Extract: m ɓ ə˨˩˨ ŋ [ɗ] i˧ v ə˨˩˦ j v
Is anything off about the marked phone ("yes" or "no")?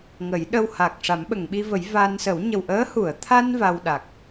yes